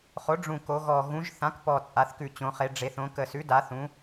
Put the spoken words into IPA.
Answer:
χo˩˥ɖ͡ʐũ˨˩ ko˩˧ɣɔ˨˩ ɣũ˩˧ʒ θã˩˥kpɔ˨˩t͡sʼa˩˧θkʉ˨˩ t͡ɕõ˩˧χe˩˧ ɖ͡ʐe˩˧θõ˩˧kə˨˩sʉ˩˥ da˩˧θũ˩˧

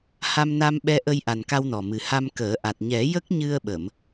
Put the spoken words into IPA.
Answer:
ha˧mna˧mɓɛ˧ ʔə˧jʔa˨˩nka˧wnɔ˨˩ mɨ˨˩ha˧mkəː˨˩˦ ʔa˨˩t̚ɲɛ˨˩˦ jə˦˥k̚ɲɨ˧ə̯ɓə˨˩˨m

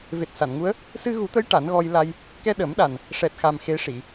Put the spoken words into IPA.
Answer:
ve˨˩t̚sa˨˩˨nŋu˧˥ə̯ | sɨ˧ɣu˨˩˦t̪ə˧˥j ʈa˨˩˦nɣɔ˧jla˧j | kɛ˧ɗə˨˩˦mɗa˨˩n | ʂɛ˨˩t̚xa˨˩m xe˧˥ʂi˨˩˨

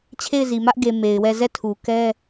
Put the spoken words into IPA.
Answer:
t͡ɕʰe˦˨ɪ̯zi˨mä˦ʔɡe˨ me˨ɪ̯wɛ˦˨ zɛ˦˨tʰu˨kɛ˦

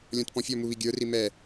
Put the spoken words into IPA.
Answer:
lʲɔ̃tpɔ̃fʲɔmu βiɡʲə˞ri mɛ

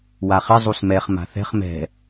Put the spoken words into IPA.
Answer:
waχɪ zˤusmɛχ ma̤θɛ̤χ mɛ̤

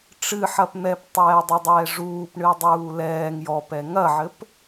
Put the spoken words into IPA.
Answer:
ʈ͡ʂɨħɐp n̪ɛptˤɛːdˤodˤɛː ʐuːpɳɨdˤuː lɛːŋ jɔpɛ ŋɐʕɘp

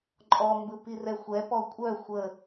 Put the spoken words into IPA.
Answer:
ǃʼɔmbɯ pirɛxʷɛpɔ kʷʼœ xʷə

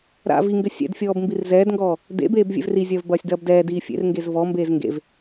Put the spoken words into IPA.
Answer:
ɾa̰ viŋɡɘ sʲɛ̰dfʲɔːb mbirzɛːdŋɡɔː | dḛbeːb vʲɛ̰vrizʲɐːv bɐːsʲdɐːbdɛːdiː fʲḛrŋɡez vɔmbeːz ŋɡḛv

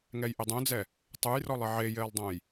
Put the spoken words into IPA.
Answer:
ŋɛjʔɪdˤõd͡zɛ | tˤujrɔlˠɪ ʕejɪːlˠdˤõj

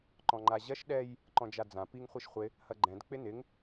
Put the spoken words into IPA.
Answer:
ǃɔ̃ŋ͡ǃaʑɐʃ ɗɛj | ǃɔ̃d͡ʒad͡zã piŋ χʷiʃχʷɪ | hɐɡ͡ǃɛ̃d k͡pɪnɪŋ

